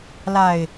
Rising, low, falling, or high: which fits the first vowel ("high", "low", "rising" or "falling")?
low